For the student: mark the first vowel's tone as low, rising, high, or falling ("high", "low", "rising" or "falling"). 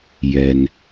low